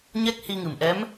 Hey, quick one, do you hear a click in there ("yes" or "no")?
no